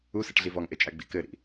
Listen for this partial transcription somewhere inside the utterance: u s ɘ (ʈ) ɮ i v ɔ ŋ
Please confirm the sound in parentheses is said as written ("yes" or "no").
yes